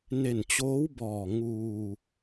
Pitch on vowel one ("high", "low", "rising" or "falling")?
low